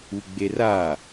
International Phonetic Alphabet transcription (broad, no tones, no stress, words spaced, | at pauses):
uɡ͡bera